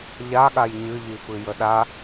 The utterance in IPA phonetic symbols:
ʎ a ɠ a j ɲ ɨ ʎ i f ɨ j ə ɗ a

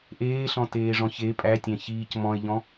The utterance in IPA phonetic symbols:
ʔ eː ɬ ɔ̃ t eː ʐ ɔ̃ ç e pʼ æ tʲ æ̃ ç iː c m ɔ̃ e̯ ʎ ɔ̃

